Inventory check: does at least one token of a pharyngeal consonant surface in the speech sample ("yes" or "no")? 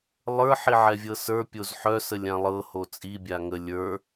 yes